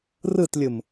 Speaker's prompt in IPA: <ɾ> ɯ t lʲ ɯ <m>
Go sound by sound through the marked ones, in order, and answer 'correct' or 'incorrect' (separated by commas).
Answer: incorrect, correct